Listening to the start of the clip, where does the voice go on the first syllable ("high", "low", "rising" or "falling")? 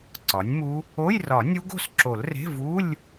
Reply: rising